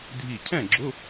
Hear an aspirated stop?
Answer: yes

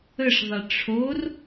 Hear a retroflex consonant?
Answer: yes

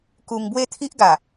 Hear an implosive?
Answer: no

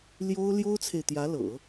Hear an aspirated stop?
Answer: yes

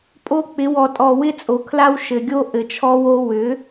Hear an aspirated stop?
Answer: yes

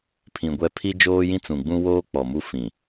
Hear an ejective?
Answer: no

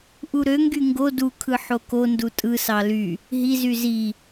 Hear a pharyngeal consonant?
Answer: yes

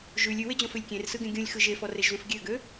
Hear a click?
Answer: no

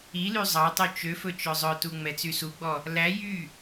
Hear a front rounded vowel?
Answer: yes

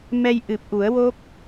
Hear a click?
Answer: no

